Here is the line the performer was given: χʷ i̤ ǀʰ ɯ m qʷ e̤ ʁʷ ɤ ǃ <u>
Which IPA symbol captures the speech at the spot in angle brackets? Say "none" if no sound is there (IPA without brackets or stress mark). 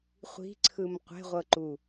u